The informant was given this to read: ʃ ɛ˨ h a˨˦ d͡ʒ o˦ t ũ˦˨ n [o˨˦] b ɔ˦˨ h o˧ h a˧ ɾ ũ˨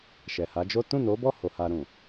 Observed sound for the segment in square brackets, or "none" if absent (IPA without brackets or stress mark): o˨˦